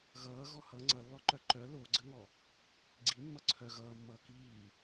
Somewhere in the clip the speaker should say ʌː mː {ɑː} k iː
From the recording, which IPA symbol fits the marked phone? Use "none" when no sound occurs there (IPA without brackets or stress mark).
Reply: ʌː